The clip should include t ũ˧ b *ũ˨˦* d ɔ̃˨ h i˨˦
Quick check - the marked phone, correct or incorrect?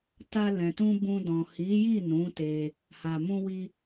incorrect: ũ˧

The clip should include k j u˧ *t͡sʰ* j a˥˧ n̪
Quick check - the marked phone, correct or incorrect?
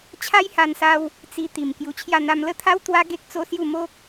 incorrect: t͡ɕʰ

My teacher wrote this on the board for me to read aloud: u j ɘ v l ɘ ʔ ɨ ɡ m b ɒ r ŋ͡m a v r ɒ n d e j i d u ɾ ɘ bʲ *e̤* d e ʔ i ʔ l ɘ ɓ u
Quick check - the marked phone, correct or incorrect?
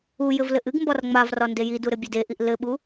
incorrect: e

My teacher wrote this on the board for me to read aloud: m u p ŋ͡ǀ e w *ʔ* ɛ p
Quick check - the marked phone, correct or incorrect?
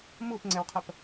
incorrect: qʰ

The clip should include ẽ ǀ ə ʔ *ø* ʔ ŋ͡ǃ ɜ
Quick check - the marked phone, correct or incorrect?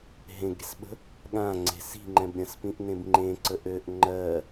correct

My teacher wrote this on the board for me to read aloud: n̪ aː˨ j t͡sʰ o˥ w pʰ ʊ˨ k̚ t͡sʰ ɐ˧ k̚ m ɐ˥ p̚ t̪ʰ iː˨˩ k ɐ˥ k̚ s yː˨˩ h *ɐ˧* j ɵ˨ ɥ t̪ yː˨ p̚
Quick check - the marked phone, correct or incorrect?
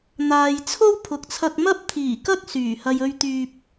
correct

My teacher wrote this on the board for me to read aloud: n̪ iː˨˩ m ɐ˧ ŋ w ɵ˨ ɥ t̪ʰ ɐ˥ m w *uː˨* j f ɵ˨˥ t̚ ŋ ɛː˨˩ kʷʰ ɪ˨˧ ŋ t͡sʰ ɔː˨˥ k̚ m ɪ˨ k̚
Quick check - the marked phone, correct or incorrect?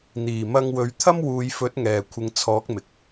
correct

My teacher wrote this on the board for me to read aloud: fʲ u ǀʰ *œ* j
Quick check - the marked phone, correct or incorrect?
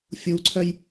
correct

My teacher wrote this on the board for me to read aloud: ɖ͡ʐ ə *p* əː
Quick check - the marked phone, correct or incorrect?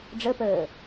correct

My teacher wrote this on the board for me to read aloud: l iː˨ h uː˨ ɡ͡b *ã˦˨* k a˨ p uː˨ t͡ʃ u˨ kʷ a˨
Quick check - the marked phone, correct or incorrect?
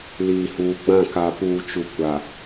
correct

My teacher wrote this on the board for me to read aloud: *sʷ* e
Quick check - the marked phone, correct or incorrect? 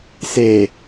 incorrect: s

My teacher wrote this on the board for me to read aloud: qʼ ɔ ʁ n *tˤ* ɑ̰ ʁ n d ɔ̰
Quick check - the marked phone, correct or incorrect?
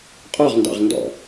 incorrect: d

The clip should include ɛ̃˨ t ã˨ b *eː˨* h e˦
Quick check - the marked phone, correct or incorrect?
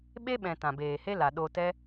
correct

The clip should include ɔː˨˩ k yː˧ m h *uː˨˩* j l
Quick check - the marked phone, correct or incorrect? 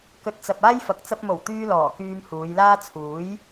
incorrect: uː˨˧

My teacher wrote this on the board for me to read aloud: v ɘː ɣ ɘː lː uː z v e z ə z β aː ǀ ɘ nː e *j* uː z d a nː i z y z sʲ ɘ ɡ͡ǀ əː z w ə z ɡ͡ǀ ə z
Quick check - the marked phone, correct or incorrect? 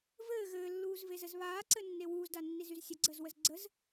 incorrect: w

